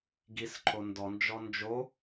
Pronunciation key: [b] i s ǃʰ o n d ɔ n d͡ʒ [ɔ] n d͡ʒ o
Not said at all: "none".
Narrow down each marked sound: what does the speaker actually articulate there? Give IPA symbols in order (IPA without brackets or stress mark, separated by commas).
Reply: ɡ, ɔ